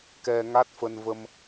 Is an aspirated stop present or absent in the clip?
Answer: absent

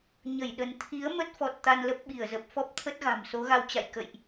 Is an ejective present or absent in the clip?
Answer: absent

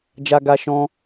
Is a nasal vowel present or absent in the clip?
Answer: present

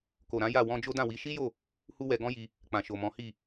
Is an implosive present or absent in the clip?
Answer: absent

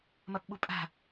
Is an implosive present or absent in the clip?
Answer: present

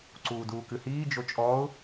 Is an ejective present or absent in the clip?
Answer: present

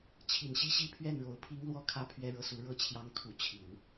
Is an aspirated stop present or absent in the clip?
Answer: present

